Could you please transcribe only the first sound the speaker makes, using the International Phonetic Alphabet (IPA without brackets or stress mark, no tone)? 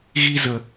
ɣ